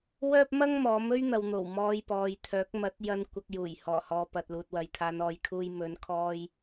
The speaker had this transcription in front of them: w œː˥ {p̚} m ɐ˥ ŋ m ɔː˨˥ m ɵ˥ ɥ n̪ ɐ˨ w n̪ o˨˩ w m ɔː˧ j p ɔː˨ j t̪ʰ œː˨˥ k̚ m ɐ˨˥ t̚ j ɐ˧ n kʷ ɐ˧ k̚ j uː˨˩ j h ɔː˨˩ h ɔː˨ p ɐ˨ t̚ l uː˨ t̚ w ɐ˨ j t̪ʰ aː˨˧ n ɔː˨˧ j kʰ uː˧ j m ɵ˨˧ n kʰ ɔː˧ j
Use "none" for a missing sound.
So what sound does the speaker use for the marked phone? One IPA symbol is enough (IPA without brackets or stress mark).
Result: p̚